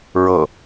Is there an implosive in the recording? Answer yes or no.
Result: no